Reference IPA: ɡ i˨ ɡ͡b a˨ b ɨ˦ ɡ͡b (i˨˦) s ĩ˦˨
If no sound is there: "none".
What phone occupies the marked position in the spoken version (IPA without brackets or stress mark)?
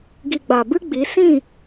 i˨˦